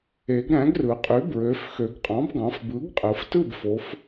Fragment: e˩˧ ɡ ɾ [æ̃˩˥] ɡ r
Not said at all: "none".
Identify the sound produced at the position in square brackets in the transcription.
æ̃˩˥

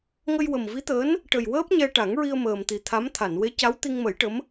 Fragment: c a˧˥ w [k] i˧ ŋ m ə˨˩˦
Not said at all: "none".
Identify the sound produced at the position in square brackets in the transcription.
t̪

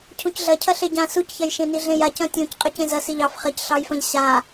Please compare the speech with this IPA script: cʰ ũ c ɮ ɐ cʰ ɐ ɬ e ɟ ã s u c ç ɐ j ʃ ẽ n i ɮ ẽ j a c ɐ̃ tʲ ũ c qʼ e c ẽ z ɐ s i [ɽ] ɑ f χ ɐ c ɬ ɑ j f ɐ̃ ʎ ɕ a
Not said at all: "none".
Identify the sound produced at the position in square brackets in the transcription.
ʎ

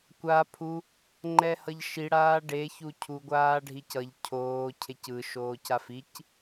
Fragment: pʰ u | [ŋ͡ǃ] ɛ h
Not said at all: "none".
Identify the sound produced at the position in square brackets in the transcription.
ŋ͡ǃ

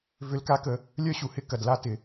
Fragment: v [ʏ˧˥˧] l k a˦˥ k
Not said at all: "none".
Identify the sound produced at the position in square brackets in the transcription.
ʏ˧˥˧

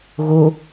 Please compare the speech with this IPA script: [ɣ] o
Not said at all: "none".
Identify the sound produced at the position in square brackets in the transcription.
ɣ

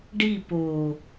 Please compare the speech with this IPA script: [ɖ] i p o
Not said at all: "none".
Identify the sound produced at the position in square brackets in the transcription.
ɖ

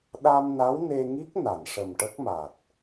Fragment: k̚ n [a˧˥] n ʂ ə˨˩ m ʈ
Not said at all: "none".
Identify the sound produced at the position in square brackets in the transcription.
a˨˩˨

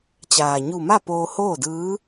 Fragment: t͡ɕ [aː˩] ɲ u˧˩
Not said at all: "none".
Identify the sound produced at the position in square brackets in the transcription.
aː˩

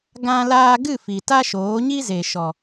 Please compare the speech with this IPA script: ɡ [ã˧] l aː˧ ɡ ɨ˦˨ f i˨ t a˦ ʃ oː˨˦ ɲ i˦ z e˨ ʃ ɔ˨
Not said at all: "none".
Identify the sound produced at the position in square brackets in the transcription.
ã˧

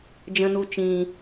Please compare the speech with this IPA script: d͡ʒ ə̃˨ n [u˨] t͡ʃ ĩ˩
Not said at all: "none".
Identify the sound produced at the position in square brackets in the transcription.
u˨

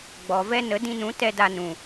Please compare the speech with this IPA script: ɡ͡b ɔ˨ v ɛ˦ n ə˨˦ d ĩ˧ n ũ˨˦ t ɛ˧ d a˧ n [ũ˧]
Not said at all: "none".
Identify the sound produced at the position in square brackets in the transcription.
ũ˨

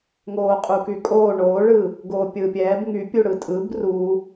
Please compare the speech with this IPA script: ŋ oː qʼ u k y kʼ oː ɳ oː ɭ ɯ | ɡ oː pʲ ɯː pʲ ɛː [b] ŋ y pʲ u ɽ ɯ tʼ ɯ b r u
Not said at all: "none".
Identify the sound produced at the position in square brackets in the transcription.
b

